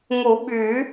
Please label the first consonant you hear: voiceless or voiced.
voiced